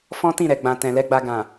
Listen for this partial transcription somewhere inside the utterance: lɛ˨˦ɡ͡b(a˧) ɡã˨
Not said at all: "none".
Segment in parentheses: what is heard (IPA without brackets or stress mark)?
a˧